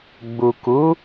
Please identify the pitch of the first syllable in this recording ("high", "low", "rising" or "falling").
low